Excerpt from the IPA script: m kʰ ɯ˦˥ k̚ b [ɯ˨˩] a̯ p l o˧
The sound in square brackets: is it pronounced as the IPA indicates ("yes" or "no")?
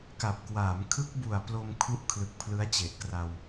no